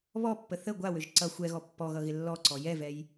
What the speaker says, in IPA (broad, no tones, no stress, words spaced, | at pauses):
βɔpːə θə ɡʷawøʒ ǀʌ xʷɛɣɔ pːɔɣʌɣɪ lːɔǀɔ jɛvɛj